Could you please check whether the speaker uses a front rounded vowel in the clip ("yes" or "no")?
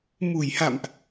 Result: no